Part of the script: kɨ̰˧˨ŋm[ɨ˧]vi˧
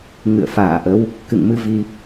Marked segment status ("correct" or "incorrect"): incorrect